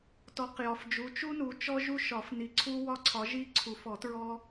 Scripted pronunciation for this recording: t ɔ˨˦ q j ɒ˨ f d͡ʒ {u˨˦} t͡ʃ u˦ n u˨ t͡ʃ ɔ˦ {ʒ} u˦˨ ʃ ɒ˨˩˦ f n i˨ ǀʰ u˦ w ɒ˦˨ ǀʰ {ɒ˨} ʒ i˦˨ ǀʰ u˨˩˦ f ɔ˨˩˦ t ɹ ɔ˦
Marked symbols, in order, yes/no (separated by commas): yes, yes, no